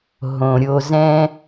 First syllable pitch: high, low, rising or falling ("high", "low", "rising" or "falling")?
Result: low